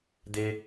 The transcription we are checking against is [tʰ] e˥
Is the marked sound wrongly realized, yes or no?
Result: yes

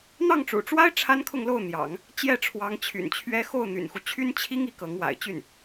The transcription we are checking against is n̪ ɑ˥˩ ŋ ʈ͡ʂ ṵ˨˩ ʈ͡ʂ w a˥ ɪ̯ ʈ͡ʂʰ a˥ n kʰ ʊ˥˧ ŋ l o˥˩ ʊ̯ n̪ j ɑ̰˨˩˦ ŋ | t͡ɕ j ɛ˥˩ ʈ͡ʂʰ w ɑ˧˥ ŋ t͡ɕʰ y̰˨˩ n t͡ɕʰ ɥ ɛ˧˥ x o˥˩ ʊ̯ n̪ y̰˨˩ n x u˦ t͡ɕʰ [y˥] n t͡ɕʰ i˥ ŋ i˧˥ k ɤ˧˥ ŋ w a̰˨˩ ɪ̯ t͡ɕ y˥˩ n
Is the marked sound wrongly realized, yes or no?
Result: no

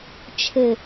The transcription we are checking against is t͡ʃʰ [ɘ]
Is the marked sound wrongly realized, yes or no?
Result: no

